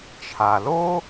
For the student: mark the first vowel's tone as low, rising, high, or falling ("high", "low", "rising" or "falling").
low